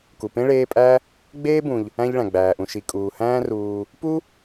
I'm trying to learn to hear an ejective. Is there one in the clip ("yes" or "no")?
yes